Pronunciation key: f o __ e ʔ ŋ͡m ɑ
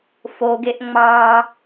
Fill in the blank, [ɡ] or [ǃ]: ɡ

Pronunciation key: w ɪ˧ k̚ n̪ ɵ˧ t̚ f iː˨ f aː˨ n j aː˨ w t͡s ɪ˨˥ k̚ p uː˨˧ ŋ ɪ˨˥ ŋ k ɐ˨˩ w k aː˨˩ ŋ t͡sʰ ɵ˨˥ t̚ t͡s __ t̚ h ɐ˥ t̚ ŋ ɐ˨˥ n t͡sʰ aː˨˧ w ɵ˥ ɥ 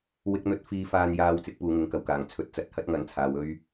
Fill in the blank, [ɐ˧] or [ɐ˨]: ɐ˨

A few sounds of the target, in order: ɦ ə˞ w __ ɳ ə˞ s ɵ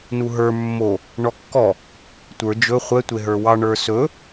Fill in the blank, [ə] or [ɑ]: ɑ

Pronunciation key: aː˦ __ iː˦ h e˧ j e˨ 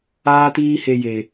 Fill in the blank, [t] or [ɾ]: t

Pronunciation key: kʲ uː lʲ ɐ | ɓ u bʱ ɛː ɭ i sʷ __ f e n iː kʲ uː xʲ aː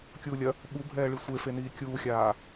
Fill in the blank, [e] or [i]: e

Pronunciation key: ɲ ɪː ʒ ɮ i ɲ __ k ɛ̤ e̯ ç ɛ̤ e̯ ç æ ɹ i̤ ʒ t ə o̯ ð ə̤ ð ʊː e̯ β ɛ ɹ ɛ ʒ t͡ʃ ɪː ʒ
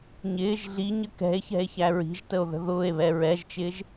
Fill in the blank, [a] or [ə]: ə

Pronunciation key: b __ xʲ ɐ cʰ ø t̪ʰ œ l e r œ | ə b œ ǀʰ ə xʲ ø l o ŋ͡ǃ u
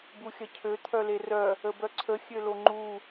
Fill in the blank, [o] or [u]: u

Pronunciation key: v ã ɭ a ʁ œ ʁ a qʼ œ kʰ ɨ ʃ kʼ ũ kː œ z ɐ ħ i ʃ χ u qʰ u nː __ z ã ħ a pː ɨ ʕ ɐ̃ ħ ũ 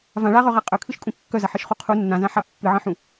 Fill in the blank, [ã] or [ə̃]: ã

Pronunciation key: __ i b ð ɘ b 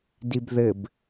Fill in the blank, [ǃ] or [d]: d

